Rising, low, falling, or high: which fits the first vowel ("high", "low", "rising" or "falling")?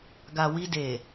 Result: low